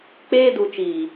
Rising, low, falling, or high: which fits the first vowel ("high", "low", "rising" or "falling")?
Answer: high